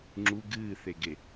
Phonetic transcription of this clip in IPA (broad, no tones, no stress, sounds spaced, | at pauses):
ŋ͡ǁ u ɡ ɨː θ e ɡ e